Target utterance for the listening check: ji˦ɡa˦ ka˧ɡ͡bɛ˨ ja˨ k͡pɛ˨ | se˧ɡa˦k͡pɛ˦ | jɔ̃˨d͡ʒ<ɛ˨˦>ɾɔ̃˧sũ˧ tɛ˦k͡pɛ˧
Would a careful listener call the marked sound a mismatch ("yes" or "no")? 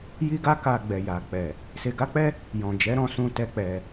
no